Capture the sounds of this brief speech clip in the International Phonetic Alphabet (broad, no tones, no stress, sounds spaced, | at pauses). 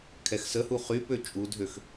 kʰ ɛ x s ə h u χ y p ø t͡ʃʼ u dʱ ø x